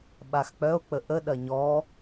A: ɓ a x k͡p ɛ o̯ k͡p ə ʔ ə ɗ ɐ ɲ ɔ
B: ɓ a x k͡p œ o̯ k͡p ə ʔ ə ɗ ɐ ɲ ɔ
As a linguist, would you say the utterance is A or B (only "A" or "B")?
B